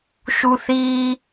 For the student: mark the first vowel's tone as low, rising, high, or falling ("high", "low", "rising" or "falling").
high